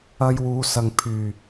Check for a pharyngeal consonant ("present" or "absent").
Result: absent